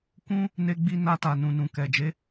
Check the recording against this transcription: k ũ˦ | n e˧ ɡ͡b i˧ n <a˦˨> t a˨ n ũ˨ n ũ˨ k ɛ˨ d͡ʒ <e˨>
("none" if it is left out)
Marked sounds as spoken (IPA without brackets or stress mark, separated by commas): a˧, e˨˦